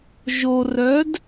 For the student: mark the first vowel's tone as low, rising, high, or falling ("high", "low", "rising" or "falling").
low